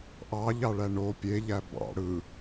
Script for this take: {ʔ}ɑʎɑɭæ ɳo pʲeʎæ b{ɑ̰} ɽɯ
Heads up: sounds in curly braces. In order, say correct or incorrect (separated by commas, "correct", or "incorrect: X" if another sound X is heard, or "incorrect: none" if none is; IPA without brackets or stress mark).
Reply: correct, correct